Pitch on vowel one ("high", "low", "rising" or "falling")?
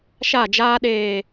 falling